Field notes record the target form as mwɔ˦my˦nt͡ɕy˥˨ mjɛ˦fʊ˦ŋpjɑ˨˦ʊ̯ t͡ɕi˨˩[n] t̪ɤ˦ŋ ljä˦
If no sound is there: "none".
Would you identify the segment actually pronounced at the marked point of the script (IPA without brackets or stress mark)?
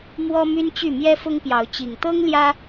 ŋ